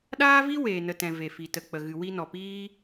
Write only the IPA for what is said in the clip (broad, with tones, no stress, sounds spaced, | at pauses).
ɗ aː˦ v i˦ w eː˨ n ə˨ t ɛ̃˨ v e˨ f i˨ t ə˨ k͡p ə˨ ɣ ɨ˨ w i˧ n ɔ˨ p iː˦